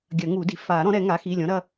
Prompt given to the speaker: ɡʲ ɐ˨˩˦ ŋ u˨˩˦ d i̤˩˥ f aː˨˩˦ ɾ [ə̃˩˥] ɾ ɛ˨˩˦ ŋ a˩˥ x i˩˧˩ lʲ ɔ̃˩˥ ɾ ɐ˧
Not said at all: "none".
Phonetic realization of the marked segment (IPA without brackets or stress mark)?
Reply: ɔ̃˩˥